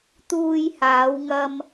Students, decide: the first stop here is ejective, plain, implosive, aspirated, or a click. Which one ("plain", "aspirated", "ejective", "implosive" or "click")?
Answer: plain